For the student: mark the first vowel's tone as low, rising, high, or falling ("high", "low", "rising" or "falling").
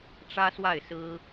high